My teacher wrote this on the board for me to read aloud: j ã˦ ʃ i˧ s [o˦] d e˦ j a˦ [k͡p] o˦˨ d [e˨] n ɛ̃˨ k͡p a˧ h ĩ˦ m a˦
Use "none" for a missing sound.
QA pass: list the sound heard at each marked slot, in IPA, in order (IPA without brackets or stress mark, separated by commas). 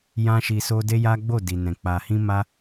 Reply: o˦, ɡ͡b, i˨